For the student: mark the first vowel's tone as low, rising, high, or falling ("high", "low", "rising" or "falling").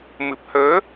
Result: low